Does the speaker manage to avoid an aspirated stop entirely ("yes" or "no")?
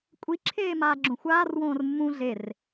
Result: no